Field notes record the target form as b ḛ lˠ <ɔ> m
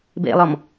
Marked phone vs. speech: correct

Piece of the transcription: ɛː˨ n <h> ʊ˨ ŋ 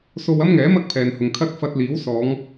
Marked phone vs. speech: correct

